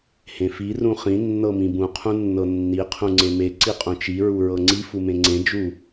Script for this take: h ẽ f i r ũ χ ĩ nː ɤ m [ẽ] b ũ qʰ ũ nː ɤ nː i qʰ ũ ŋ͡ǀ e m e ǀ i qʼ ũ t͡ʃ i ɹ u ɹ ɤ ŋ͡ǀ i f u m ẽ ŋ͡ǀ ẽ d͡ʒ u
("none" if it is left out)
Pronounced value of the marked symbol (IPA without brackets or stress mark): ĩ